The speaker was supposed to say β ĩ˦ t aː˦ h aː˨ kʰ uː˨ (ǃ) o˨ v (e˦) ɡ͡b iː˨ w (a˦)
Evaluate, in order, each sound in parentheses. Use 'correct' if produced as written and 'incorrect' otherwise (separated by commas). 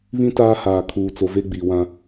incorrect, correct, incorrect